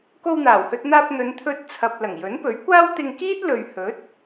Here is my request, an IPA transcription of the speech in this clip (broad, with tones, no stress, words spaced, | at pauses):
ko˧wn̪aː˨˩whɵ˧t̚n̪aː˧p̚ n̪ɵ˨˧nt̪ʰɵ˧t̚ t͡sʰɐ˨p̚ lɐ˨˩ŋjɵ˨˥npɵ˨˥ɥkʷaː˥w t̪ɪ˧ŋkiː˥t̚lɵ˨ɥ hɵ˨˥t̚